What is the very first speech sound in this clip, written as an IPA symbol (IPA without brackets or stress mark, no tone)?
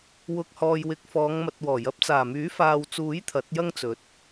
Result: w